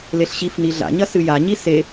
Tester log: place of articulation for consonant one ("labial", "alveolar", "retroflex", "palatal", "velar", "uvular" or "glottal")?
alveolar